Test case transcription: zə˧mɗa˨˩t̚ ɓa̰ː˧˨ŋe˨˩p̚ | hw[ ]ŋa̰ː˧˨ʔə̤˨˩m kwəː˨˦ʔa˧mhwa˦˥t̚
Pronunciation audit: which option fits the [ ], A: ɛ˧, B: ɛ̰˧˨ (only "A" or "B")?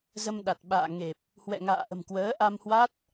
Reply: B